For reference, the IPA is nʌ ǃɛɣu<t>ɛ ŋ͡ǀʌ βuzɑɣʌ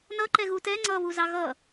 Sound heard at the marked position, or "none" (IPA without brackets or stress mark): t